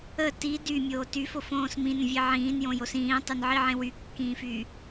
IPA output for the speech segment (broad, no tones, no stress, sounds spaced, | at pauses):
ə t i d y mʲ oː t y f o f õː s m ĩ n ə̃ vʲ e ʕ ĩː n j õ j o s ĩː tˤ y n ʕ i ʕ ẽ w y kː ĩː f y